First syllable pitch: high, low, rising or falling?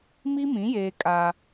high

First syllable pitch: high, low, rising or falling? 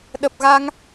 low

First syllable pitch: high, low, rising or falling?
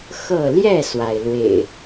falling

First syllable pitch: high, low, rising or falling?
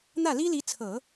falling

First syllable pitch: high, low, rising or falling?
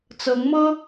rising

